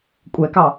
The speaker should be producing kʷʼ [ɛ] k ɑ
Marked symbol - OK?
yes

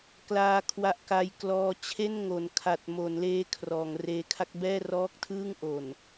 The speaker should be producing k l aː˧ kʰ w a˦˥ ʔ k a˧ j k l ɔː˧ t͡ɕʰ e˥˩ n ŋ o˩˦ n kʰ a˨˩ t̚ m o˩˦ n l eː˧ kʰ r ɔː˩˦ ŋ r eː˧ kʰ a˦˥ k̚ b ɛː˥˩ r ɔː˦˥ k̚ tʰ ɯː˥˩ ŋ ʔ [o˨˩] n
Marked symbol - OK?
yes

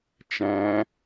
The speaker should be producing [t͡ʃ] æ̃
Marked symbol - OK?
yes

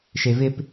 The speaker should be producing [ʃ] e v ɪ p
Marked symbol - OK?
yes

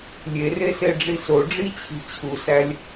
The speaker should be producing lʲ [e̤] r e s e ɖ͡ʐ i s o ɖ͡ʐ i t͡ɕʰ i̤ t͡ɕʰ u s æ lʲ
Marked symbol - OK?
no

